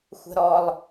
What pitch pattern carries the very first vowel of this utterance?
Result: high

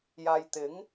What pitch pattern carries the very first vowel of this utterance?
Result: low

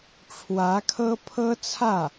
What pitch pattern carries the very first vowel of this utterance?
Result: rising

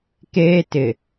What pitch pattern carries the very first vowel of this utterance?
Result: high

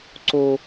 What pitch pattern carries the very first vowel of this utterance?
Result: high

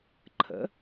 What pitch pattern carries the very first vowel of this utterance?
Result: rising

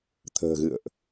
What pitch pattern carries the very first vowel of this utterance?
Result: low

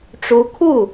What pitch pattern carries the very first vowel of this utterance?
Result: rising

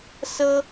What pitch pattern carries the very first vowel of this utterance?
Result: high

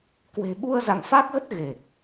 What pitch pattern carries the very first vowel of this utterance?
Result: low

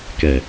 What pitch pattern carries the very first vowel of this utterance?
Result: low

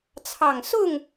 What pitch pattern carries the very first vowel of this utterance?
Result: low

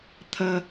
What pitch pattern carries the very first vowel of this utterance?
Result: high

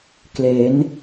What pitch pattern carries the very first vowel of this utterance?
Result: rising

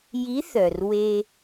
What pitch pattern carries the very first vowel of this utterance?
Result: rising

